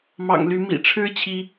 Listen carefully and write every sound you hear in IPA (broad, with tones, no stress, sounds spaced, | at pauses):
m ɑ̰˨˩ ŋ l y˨˦ m ḭ˨˩ ʈ͡ʂʰ ɻ̩˦ t͡ɕʰ i˨˦